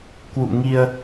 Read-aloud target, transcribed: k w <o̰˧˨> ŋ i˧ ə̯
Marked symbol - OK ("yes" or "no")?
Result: no